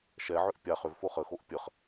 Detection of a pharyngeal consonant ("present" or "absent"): present